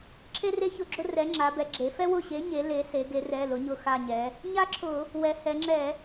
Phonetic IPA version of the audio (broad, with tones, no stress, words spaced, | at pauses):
ǁʰe˥re˥çʊ˦˨ɡ͡ǁʊ˥ rɛ˨˥ŋ͡ǁa˩˧bɛ˩˧ɡ͡ǁe˩˧ fɛ˥wʊ˦˨ɕe˨˥ ɲe˨˥le˨˥ se˩˧ɡe˩˧rɛ˩˧˩ lʊ˨˥ɲʊ˦˨ xa˦˨ɲɛ˩˧ | ɲa˥ǁʰʊ˧˩˧ | wɛ˩˧hɛ˩˧ŋ͡ǁɛ˧˩˧